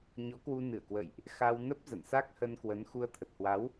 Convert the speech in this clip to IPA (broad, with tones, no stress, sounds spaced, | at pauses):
ɲ ɔ˨˦ k w u˧ n ɨ˧˩ ə̯ k w ə̰˧˨ j ʔ | x a˧ w n ə˦˥ p̚ z ə̰˧˨ n s a˦˥ k̚ h ə˧ n k w ə˨˦ n x u˧ ə̯ t̪ʰ ə˨˩ t̚ h w a˨˦ w